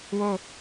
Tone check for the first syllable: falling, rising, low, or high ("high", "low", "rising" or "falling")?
falling